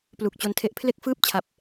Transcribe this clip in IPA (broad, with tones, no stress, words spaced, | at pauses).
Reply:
plu˨˩k̚t͡ɕo˧ntʰe˦˥ʔ pʰle˥˩k̚fɯː˥˩p̚t͡ɕʰa˨˩p̚